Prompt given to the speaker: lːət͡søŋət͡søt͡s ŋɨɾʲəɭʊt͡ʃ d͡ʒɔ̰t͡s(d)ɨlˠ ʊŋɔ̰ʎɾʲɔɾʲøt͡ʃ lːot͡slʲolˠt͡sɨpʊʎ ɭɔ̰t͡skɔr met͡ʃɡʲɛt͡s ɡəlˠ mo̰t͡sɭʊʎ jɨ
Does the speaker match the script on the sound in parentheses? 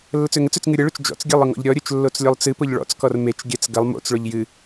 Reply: no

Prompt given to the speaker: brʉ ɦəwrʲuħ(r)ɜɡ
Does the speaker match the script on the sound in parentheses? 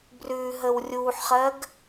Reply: no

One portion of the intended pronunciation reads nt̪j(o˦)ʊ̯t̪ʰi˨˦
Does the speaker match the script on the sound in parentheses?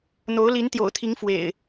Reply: no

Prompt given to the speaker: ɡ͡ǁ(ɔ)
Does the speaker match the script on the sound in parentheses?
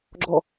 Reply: yes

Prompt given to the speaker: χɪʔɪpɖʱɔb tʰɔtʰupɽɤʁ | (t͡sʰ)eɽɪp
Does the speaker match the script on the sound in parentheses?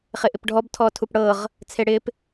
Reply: yes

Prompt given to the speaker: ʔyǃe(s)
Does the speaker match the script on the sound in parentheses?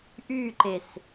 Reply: yes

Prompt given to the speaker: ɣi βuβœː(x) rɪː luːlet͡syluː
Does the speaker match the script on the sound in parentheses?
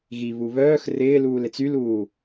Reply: yes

